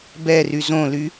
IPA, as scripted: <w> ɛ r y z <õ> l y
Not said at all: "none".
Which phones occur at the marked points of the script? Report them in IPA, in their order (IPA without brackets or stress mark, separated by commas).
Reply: b, õ